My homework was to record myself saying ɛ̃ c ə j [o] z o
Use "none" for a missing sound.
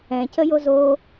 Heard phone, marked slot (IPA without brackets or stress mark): o